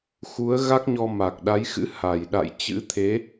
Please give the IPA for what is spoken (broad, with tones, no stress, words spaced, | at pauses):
xu˨˦ə̯ɣa˦˥k̚ɲɔ˧ ma˨˩k̚ɗa˨˦jxɨ̰˧˥ ha˧˩jɗa̰˧˨jt͡ɕɨ̰˧˥t̪ʰe˨˦